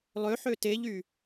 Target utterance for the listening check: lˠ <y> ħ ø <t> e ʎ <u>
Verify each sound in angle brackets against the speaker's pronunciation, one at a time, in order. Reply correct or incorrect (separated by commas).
incorrect, correct, incorrect